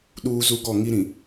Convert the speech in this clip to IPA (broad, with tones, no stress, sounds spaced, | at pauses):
ɗ uː˦ z u˦ ɡ ɔ˦˨ ŋ i˦ ɾ ĩ˨